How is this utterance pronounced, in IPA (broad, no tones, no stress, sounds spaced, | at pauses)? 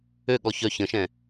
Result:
ø ɠ ɔ ç œ ç ə̃ ʃ ɛ̃